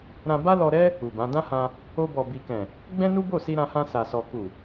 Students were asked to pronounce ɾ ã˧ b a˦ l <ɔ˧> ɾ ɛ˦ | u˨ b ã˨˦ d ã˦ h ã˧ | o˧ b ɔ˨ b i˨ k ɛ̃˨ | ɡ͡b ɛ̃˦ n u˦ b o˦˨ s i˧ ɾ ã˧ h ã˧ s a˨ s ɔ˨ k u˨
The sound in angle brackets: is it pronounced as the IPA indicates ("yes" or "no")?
yes